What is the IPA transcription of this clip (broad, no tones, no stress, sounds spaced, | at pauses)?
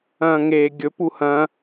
ɐ̃ː ŋ eː ɡʲ ɵ p u h ɐ̃